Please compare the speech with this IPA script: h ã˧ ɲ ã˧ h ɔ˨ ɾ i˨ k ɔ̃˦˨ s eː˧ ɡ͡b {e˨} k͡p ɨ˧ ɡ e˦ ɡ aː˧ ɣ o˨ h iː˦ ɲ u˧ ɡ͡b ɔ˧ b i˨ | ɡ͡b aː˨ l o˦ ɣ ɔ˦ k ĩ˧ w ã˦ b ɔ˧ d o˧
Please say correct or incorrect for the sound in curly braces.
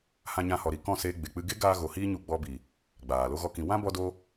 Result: correct